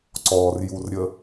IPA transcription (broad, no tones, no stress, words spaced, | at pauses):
ǀɔrjurɾʲə